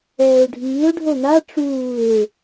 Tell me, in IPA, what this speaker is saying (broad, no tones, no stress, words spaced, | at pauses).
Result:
ɛːʊ̯ɖʱiːʊ̯ ɖʱon̪a ʈ͡ʂuːɪ̯